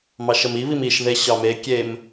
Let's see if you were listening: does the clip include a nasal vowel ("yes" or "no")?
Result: no